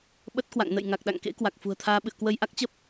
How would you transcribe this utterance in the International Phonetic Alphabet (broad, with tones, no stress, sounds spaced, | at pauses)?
ɓ ə˦˥ t̚ k w a̰˧˨ ŋ n ə̰˧˨ j ŋ a˨˩ k̚ ɗ a̰˧˨ ŋ k ḛ˧˥ k w a˨˩ k̚ f ṳ˨˩ ə̯ t̪ʰ aː˧ ɓ ɨ̰˧˨ ə̯ k w ə˧ j ʔ a˦˥ k̚ t͡ɕ ə˦˥ p̚